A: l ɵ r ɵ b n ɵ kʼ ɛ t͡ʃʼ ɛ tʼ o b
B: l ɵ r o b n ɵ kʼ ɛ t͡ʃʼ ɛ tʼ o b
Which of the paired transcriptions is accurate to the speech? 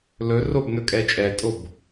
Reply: B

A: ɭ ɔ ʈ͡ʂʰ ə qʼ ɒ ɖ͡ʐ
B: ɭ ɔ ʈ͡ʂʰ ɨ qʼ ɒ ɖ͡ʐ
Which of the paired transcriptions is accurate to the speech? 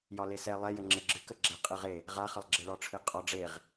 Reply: B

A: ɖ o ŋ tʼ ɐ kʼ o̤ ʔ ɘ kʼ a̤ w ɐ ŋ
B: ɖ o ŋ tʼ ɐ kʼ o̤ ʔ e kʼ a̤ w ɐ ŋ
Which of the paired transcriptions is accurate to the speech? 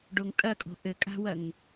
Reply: A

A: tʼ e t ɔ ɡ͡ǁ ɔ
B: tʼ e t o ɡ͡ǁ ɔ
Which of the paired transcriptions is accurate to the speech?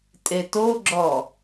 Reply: B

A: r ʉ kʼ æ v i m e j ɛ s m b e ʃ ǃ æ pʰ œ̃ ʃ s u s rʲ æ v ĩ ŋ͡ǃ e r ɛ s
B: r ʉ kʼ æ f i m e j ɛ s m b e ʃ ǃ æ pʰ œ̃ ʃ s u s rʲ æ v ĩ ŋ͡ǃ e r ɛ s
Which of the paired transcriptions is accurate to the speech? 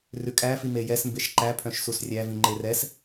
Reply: B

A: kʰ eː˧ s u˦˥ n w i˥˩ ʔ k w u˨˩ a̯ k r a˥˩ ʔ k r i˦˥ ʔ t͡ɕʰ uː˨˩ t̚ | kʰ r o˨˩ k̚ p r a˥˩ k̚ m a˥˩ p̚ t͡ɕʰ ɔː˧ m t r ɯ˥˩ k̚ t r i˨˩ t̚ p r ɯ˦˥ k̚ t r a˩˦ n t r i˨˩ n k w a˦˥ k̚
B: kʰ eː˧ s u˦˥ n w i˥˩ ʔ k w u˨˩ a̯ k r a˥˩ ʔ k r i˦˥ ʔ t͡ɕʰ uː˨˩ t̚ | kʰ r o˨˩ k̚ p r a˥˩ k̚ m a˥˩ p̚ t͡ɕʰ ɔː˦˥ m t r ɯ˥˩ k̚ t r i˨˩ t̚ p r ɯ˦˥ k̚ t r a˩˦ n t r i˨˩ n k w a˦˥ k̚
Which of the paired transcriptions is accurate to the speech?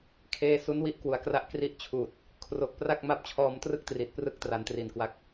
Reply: A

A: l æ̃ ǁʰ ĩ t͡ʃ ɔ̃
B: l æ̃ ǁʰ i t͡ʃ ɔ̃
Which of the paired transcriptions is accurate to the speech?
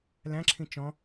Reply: A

